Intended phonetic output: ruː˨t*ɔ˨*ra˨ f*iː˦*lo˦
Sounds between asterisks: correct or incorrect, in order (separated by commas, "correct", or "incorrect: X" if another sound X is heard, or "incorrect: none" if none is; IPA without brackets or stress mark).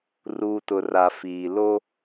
incorrect: ʊ˨, incorrect: iː˨